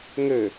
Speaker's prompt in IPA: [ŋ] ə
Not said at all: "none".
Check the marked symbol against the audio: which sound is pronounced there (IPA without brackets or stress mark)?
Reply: ŋ